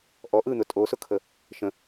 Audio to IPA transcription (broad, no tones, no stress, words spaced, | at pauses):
ʔɔ ʔɯn̪ʊ tʼosʊkʰə | ʃə̃